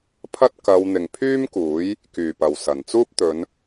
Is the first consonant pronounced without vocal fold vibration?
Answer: yes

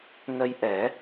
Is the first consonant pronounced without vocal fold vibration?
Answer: no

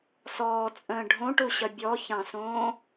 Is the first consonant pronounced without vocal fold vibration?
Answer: yes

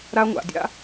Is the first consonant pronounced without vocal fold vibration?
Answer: no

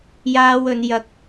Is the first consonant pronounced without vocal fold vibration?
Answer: no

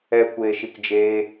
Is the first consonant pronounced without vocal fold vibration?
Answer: yes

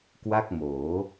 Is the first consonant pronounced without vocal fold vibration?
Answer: yes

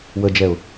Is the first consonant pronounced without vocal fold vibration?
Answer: no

